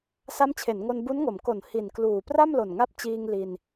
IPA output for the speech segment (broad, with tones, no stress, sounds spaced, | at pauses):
s a˦˥ m t͡ɕʰ e˩˦ n ŋ o˧ n b u˦˥ n ŋ o˩˦ m k o˨˩ n h i˨˩ n k l uː˨˩ p r a˥˩ m l o˨˩ n ŋ a˦˥ p̚ t͡ɕ iː˧ ŋ l i˧ n